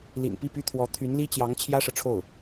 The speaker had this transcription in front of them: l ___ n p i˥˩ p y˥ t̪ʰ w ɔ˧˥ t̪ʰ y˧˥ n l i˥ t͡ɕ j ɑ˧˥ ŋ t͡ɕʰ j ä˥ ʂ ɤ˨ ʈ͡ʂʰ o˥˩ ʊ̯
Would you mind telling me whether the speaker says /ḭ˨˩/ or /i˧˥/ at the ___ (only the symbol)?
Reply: ḭ˨˩